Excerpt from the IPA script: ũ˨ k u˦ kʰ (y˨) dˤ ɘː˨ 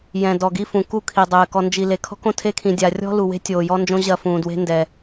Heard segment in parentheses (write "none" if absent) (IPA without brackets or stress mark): i˨